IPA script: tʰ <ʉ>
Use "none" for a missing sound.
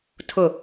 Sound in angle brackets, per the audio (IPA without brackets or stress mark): ʊ